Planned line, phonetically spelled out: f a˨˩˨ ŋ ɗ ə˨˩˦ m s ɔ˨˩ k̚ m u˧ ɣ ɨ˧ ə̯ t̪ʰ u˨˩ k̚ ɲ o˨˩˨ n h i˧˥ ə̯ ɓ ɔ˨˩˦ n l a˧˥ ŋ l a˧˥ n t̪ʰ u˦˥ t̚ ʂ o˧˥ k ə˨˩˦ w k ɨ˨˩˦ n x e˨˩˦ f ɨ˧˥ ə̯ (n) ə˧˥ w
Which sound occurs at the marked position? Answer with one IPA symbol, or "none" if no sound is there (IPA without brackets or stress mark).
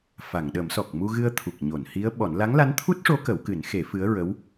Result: ɹ